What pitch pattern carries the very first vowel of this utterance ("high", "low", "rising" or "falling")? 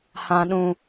low